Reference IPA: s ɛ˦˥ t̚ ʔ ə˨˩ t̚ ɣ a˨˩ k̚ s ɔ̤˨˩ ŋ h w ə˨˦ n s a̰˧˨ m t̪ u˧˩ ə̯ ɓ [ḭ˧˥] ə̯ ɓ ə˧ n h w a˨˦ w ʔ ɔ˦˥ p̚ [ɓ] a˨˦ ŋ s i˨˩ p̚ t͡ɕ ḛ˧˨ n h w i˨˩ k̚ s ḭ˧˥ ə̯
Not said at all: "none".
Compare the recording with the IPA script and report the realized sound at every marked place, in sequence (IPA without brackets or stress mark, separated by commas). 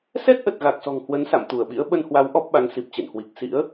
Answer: ḭ˧˥, ɓ